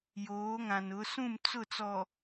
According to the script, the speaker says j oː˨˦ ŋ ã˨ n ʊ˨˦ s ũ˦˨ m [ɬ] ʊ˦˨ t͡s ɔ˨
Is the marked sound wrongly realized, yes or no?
yes